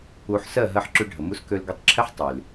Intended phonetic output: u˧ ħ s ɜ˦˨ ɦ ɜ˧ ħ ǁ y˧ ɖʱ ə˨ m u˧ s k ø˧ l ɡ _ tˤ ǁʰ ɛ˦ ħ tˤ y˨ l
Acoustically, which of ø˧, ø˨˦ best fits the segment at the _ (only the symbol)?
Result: ø˧